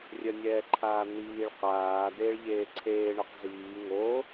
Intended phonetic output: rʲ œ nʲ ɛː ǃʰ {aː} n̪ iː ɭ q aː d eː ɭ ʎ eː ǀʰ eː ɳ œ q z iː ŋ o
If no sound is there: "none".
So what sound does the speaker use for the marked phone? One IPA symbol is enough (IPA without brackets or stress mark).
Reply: aː